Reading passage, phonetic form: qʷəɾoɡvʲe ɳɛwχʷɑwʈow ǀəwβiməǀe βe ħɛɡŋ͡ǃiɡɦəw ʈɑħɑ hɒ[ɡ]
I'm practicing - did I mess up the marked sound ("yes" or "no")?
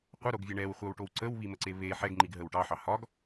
no